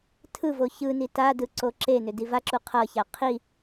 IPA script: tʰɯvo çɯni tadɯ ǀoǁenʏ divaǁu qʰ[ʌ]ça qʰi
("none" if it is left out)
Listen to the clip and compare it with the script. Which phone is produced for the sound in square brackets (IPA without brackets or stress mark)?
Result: ʌ